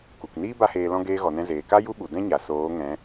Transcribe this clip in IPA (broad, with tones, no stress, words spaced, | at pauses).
ku˨kniː˦ ba˦heː˧lɔ̃˦ ɡeː˧ɣɔ˨nɛ̃˧ zeː˨ka˦ ju˦ɓu˨ dɛ̃˦ɲa˨ soː˨˦ŋɛ̃˨˦